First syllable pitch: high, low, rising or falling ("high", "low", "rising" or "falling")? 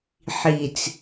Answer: low